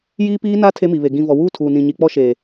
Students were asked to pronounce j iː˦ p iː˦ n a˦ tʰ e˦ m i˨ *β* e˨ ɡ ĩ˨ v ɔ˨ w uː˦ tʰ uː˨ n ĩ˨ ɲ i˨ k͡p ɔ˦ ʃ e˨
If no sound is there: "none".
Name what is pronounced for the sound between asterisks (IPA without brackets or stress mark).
β